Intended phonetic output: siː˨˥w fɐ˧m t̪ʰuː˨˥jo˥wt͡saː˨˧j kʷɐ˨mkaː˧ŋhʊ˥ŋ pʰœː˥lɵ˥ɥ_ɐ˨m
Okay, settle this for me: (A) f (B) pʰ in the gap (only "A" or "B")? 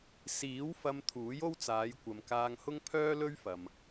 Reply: A